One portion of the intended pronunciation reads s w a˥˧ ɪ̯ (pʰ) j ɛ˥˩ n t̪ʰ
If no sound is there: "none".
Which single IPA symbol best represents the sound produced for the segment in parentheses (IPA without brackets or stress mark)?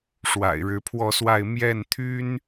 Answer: m